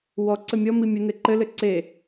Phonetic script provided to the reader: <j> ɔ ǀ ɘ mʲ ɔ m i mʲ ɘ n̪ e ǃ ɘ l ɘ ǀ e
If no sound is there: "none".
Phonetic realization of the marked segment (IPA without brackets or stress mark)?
w